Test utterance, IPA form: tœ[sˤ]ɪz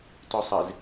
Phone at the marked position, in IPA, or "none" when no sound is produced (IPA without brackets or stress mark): sˤ